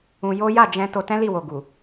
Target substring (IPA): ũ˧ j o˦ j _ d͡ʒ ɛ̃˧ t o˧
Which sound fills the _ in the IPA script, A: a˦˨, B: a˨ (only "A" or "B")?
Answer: A